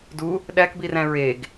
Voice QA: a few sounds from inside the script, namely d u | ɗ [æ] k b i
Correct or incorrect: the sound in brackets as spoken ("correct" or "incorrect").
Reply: correct